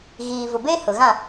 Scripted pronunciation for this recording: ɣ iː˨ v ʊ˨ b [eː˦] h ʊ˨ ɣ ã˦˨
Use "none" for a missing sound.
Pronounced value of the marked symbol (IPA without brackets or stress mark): eː˦